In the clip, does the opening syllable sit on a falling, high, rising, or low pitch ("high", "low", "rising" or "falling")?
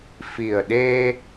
low